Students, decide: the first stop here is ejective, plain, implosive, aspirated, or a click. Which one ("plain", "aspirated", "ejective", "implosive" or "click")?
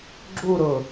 click